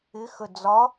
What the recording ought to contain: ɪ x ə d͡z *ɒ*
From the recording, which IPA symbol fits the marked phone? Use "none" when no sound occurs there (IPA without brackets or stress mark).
ɒ